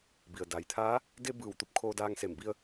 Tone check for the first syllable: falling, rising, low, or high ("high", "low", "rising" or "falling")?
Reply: low